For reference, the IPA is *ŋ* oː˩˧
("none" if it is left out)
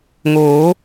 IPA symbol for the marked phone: ŋ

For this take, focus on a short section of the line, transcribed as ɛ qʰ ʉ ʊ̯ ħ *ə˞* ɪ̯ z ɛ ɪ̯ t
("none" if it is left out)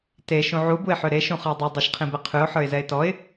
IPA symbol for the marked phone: ə˞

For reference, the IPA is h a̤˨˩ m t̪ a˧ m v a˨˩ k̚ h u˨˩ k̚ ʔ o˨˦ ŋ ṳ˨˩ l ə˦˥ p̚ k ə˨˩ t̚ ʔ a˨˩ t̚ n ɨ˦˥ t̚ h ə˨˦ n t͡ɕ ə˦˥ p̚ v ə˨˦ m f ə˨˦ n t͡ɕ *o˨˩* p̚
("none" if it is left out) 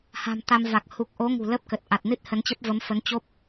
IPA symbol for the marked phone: o˦˥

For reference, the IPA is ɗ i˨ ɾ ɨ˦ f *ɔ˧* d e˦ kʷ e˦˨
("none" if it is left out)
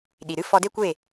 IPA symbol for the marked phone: ɔ˧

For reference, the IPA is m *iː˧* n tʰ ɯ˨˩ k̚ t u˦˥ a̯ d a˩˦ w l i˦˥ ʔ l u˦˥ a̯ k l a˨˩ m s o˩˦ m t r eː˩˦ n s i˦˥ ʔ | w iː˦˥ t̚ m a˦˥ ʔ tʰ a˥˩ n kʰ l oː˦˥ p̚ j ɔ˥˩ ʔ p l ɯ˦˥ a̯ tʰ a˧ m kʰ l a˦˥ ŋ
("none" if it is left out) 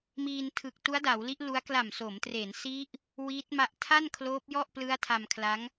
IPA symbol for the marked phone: iː˧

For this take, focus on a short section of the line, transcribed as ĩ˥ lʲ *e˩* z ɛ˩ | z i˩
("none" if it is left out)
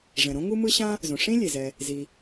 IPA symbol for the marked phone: e˩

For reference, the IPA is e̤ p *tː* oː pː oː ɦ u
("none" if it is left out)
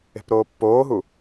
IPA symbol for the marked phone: ɾ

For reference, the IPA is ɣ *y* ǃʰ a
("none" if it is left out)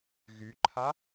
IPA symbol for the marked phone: y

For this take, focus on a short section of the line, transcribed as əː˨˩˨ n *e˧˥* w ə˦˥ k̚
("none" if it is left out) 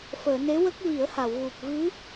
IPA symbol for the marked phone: e˧˥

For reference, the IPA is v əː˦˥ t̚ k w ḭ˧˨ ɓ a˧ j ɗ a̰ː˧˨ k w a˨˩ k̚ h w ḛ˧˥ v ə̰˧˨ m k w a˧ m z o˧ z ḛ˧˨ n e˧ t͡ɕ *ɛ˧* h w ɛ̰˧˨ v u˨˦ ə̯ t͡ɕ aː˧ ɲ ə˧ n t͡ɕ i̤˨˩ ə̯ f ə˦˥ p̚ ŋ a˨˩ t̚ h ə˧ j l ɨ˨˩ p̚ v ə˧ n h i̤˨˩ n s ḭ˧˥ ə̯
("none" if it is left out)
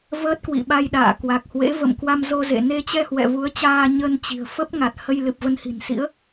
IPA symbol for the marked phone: ɛ˧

